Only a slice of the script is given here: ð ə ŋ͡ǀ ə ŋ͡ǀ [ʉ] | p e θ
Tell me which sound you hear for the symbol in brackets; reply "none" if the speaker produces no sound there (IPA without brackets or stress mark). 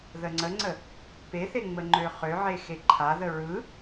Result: ə